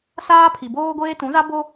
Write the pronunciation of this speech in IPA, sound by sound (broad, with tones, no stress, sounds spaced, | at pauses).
s aː˦ pʰ i˨ b oː˦ ɡʷ eː˦ t ũ˨˦ z a˦ b o˦